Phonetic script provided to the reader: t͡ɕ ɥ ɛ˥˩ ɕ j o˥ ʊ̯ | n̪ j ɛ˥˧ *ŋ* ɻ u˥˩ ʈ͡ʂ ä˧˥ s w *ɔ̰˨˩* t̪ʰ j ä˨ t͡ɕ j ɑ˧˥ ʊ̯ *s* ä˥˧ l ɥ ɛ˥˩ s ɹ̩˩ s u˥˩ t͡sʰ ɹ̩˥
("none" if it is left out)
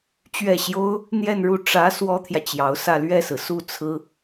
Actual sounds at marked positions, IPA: n, ɔ˥, s

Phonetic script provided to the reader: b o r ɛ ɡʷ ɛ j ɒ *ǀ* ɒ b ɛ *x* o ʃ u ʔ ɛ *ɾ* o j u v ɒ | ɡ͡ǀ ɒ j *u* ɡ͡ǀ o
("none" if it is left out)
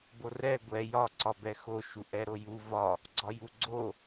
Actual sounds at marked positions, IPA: ǀ, x, ɾ, u

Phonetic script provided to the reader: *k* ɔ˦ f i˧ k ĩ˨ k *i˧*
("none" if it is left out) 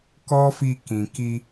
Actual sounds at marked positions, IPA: k, i˧

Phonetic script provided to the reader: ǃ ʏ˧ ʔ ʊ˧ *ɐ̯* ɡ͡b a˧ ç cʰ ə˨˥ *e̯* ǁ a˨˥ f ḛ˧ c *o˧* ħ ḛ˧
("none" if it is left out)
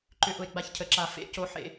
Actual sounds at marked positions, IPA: e̯, none, o˧

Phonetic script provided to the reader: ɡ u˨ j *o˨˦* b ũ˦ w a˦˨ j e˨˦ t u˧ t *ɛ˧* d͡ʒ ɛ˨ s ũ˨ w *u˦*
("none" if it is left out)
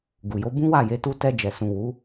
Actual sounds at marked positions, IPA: o˨˦, ɛ˧, u˨˦

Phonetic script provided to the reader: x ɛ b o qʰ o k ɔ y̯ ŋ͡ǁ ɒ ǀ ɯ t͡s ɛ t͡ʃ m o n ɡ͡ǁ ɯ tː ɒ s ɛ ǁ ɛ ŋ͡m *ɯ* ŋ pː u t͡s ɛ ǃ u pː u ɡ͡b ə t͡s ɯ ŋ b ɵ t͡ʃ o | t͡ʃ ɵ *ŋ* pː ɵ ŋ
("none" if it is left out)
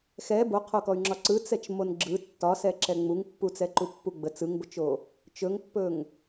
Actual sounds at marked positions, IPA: u, ŋ

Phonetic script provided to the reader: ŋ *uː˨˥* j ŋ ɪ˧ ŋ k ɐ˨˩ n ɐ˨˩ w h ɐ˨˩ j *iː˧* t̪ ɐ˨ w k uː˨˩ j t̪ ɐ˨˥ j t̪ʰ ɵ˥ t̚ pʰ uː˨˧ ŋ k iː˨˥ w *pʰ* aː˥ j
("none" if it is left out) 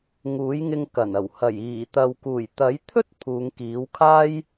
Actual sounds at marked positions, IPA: uː˨˥, iː˨˩, kʰ

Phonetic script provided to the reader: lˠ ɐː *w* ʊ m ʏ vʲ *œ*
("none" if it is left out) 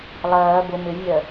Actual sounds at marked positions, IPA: b, œ

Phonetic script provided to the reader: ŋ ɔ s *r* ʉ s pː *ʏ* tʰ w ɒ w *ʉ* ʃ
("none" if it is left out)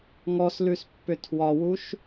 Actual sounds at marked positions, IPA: l, ʏ, u

